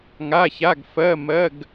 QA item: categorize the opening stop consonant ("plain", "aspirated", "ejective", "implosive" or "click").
plain